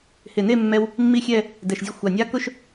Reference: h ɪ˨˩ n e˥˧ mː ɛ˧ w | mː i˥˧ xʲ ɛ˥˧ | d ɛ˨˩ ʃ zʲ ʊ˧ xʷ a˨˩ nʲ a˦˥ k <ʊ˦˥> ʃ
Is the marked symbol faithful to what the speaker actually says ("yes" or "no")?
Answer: no